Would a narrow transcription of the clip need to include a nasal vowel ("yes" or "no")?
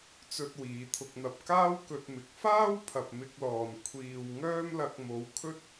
no